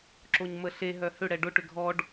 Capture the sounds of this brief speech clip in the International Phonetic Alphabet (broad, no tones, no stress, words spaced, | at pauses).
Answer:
ǁoɲməɬe ɦœhʏ ɽɛɖʊ ʈʏɡʱɔɖ